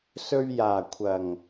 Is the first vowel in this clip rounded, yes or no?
yes